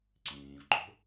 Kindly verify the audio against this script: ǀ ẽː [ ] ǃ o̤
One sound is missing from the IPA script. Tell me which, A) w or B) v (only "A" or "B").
B